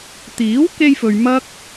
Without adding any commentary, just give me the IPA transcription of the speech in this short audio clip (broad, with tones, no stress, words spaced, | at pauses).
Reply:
t̪iː˨˥wke˧jfɵ˨ɥ mɐ˥k̚